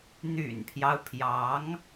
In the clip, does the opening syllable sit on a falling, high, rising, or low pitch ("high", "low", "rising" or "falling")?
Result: low